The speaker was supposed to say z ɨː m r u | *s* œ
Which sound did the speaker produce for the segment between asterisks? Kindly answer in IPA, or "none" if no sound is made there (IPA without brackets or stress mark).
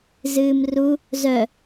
z